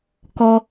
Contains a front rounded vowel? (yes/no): no